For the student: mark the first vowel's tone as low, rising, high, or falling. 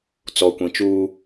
low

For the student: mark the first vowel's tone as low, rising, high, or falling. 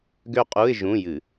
falling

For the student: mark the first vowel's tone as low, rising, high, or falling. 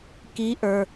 rising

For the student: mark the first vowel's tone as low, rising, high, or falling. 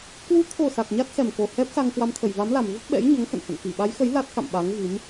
rising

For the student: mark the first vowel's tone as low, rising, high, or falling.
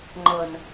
low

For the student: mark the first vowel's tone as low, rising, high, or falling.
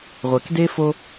low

